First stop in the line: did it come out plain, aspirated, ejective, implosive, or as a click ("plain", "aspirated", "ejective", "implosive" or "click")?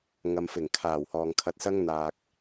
aspirated